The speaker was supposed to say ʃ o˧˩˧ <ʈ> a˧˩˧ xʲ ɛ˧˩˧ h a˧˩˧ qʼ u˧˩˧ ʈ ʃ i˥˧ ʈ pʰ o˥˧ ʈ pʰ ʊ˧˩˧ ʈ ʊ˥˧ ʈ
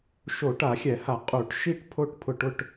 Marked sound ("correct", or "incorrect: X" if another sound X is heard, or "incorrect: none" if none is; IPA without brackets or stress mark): correct